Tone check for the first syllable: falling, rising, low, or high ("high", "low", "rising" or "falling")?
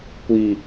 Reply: low